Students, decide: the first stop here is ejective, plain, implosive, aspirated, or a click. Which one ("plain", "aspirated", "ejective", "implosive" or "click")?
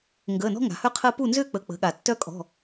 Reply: plain